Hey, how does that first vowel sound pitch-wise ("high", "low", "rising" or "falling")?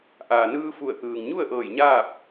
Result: low